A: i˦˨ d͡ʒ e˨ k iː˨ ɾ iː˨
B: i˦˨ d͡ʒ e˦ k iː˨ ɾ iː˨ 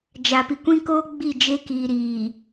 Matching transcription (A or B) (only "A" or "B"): B